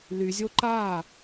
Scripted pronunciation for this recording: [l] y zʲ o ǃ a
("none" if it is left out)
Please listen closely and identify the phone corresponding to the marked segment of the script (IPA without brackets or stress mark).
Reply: l